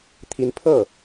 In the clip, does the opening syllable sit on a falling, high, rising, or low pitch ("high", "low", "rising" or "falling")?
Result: rising